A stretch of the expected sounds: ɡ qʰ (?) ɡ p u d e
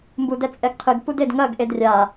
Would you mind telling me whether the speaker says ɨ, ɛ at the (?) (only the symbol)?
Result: ɨ